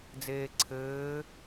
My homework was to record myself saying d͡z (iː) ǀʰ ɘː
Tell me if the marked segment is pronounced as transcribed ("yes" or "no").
no